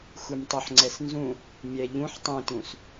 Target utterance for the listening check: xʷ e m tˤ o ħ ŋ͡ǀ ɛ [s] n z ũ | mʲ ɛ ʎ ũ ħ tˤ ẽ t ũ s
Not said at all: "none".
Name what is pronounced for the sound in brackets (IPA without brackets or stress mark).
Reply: s